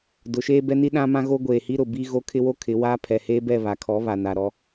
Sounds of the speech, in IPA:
dʊ˨˦ʃeː˦bɛ˦ni˦ ɗã˦mã˦ɣo˦ ɡʷeː˨hi˦ɾʊ˨ bi˦ ɣo˦kʰɪ˦wo˦kʰɪ˨˦ waː˦ pʰɛ˨heː˦bɛ˦˨ βa˨kʰɔ˨˦ βa˨na˨ɾɔ˦

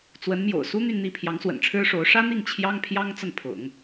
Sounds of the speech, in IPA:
t͡swə˧˥nmjo̰˨˩ʊ̯ su˥n̪y˥˧nn̪i˥˩pʰjɑ˧˥ŋ swə̰˨˩nʈ͡ʂʰɻ̩˥ʂo˧˥ʊ̯ ʂä˥n̪i˥˩ŋ t͡ɕʰjɑ˥ŋpʰjɑ˥ŋ t͡sə˥˩npʰʊ̰˨˩˦ŋ

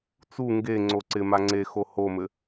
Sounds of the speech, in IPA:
t͡su ŋɡe ŋ͡ǀoǀɪma ŋ͡ǀexo homɘ

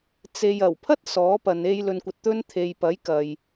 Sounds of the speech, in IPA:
t͡se˨jɐ˨˩wpʰɐ˥t̚ sɔː˨˥pɐ˨˧ne˧j lɵ˨nkʷɐ˨t̚ t̪ɵ˧n t̪ʰe˨jpɐ˨˥jkɐ˨j

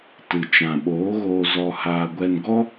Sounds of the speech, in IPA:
tɨ˨ t͡ʃã˨ɓoː˨˦ɣoː˧ zɔ˧haː˧ ɡʷɛ˧nɡɔ˦

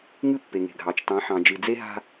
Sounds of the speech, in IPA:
ŋɨ˦pːe˨ŋe̤˨ɡʱɑ˨t͡ʃ tɑ̃˨˦ħɑ̃˨ d͡ʒɨ˨d͡ze˦ɦa̤˦

